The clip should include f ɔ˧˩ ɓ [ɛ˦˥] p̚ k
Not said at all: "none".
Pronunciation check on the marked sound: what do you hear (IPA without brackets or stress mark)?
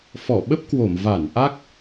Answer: ə˦˥